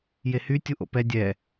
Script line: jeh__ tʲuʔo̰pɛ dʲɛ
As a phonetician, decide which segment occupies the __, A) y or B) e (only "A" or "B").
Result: A